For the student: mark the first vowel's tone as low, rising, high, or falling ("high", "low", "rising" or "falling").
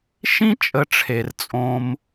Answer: high